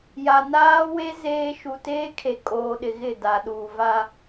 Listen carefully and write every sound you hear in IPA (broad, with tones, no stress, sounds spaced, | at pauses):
j a˨ n aː˦ w e˦ z eː˦ ʃ u˨ t eː˦ kʰ e˨ kʼ oː˨ ɗ ɪ˨ ɣ ɪ˦˨ d a˨ ɗ uː˨ v a˦